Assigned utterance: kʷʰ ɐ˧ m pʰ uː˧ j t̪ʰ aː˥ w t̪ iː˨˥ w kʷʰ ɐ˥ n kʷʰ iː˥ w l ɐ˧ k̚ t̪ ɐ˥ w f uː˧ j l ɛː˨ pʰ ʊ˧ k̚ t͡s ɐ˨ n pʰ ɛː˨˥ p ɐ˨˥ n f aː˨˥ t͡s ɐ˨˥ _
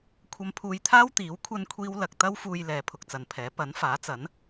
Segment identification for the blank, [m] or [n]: n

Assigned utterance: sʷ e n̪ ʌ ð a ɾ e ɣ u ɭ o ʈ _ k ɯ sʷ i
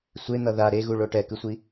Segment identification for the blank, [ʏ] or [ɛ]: ɛ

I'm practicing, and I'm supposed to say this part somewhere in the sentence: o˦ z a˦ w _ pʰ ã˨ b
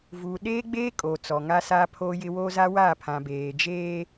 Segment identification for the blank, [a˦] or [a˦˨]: a˦˨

